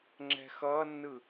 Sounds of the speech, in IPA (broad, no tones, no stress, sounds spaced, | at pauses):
ŋ͡ǁ ɛ̤ x ʌ nː ɯ